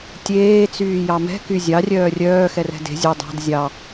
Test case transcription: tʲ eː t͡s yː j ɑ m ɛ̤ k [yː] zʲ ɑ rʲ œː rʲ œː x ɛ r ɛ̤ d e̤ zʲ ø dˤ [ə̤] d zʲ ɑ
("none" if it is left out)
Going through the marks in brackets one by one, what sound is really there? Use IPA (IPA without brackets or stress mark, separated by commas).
y, ɑ̤